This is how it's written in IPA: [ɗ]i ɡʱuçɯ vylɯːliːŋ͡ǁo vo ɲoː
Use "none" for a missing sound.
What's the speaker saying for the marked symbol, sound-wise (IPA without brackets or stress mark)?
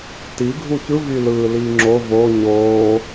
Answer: t